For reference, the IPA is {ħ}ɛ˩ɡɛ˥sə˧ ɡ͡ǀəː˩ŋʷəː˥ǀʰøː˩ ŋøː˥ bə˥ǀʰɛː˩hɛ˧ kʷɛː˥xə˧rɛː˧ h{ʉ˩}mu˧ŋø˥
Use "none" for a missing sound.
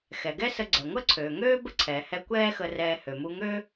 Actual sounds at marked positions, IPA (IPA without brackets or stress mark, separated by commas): x, ø˩